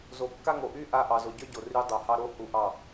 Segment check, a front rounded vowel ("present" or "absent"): present